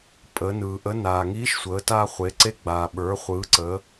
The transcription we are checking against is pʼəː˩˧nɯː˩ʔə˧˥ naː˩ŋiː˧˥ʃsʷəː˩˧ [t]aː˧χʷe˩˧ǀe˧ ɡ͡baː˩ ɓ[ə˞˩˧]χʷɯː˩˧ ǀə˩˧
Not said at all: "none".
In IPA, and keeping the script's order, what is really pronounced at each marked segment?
t, ə˞˩˧

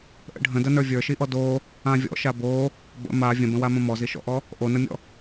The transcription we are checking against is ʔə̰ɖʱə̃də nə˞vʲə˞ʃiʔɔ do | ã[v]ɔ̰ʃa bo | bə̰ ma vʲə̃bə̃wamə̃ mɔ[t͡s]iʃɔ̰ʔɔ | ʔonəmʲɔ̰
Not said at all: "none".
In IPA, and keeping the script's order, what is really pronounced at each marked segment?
vʲ, z

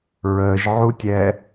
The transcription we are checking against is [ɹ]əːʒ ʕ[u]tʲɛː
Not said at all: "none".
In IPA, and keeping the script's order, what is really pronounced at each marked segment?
ɹ, u

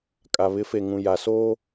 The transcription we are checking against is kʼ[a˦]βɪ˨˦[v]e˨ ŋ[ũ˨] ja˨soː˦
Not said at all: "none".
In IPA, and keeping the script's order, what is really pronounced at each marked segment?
a˨, f, ũ˨

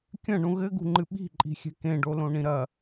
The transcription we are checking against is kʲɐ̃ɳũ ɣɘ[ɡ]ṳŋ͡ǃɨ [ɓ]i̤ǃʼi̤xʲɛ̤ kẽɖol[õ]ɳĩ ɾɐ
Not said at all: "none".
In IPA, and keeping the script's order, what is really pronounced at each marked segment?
ɡ, ɓ, õ

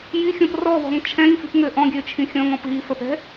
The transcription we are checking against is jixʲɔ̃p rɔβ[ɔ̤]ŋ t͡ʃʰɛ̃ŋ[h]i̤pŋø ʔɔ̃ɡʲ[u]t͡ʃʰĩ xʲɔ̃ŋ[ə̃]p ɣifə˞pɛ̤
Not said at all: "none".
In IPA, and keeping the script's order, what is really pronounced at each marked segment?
ɔ̤, f, ø, ɔ̃

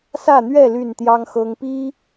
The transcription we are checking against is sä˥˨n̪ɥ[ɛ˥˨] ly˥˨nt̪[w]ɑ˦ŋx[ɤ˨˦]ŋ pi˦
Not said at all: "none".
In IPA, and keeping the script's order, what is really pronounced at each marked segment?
ɛ˥˨, j, ɤ˦

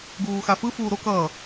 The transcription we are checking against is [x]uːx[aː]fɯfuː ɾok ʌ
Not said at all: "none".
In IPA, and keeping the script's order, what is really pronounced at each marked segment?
ɡ, a

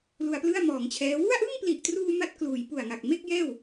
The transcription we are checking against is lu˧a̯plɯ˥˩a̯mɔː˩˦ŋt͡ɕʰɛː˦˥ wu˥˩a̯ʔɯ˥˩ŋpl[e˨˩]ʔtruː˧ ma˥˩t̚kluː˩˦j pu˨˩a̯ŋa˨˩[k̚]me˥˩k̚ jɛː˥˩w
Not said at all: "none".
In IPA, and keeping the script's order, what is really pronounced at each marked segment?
i˨˩, k̚

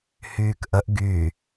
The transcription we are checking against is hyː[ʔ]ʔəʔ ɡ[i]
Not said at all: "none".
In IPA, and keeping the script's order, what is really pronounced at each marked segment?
k, y

